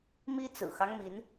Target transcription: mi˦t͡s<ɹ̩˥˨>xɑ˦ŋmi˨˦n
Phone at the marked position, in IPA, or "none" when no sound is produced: ɹ̩˨˩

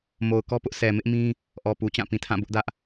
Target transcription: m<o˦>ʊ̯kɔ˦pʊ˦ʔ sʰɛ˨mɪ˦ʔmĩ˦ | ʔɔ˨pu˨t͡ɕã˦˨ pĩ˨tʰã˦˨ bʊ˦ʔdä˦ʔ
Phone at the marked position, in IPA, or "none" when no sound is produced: o˨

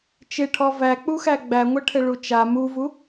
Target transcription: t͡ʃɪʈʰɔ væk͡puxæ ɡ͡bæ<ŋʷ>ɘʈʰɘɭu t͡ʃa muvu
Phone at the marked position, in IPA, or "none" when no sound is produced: ŋʷ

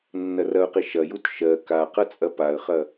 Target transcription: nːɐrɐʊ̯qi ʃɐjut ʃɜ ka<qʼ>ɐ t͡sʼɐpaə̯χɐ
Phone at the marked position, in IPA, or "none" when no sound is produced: q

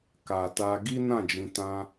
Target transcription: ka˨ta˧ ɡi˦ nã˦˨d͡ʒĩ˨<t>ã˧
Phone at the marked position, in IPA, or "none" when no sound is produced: t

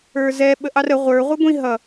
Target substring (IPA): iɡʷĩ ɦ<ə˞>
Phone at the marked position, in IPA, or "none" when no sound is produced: ʌ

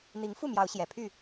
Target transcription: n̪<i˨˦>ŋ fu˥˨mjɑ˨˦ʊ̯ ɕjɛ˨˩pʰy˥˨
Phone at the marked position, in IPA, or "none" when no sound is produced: i˨˦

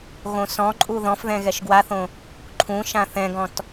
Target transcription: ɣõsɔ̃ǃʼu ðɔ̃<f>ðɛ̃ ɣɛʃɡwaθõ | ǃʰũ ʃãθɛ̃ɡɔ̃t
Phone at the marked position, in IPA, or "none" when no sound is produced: f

